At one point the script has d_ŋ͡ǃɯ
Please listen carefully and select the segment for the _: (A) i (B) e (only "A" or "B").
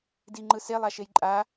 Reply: A